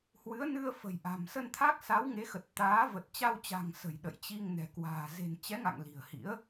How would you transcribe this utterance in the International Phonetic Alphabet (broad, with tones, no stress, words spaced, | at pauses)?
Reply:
hwɨ˨˦ə̯nɨ˧ə̯fə̤˨˩j ʔa̤˨˩msə˧nt̪ʰa˦˥k̚ sa˨˦wŋe˨˦xə˨˩t̚ t̪aː˨˦ və˨˩t̚t͡ɕa˧wt͡ɕa̤˨˩ŋ sə̤˨˩jɗə̰˧˨jt͡ɕi˧ŋ nɛ̤˨˩kwa̤ː˨˩ ze̤˨˩nt͡ɕɛ˨˦ŋa̰˧˨ŋ li̤˨˩ə̯hḭ˧˥ə̯